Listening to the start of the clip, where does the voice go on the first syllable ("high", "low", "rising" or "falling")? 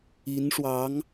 rising